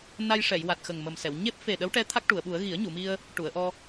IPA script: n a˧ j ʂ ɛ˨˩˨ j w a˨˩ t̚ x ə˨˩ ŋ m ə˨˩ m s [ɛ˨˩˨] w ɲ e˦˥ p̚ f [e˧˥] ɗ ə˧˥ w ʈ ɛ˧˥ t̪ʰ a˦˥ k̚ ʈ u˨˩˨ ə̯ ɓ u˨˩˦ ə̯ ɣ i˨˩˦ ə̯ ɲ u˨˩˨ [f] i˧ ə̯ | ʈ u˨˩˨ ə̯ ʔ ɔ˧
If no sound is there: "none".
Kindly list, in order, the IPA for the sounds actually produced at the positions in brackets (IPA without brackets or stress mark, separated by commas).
ɛ˨˩˨, e˨˩, m